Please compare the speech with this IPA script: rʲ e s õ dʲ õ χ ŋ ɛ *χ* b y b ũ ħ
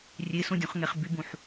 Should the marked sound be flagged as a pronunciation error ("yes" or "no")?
no